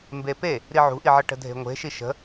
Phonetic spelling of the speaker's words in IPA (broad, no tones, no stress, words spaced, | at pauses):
mbepe | ɾiʕṳʔiʕʌ ʈə̤dʱe̤ŋʷe̤ʃi ʃə̤